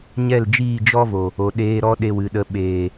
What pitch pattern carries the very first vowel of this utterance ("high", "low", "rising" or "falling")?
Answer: falling